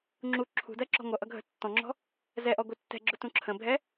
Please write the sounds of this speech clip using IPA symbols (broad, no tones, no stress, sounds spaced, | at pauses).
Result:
ŋ͡ǁ u ǁʰ ṳ d ɜ ǁ ɔ̤ ŋʷ ʌ ʔ ʌ ɡʱ ə̤ tː ɔ̃ ŋ͡ǁ ɔ̤ | z ɛ ʔ ɔ ɡʷ ɪ tː ɛ̤ ɡ͡ǁ ʊ t ũ ǁʰ ə̃ bʱ ɛ